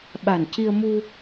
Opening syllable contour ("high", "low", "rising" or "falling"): low